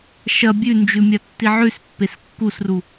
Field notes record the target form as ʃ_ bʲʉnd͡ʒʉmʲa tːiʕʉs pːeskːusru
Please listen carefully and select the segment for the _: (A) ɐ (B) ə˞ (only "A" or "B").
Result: A